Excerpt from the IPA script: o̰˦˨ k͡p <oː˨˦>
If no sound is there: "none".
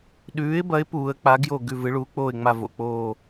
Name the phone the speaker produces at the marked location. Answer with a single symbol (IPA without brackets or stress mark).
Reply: oː˦˨